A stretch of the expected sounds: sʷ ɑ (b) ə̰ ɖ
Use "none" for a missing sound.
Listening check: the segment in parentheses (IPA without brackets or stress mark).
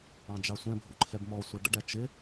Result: ɖ